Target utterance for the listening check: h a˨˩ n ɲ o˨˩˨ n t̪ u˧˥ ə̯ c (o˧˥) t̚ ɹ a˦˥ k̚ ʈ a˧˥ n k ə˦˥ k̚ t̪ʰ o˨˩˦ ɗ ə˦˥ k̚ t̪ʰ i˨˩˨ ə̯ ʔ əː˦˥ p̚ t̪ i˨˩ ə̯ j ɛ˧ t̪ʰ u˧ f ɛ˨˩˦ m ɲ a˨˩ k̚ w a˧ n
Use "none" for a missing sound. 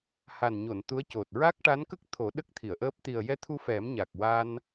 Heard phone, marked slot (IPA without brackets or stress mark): o˨˩